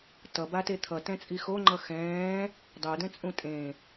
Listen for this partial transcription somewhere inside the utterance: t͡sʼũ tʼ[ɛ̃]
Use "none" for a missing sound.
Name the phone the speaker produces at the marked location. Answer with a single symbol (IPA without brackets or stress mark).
ẽ